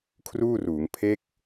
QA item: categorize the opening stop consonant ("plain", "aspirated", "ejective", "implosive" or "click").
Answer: aspirated